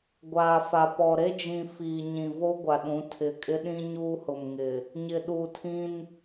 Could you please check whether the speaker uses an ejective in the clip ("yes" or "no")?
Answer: yes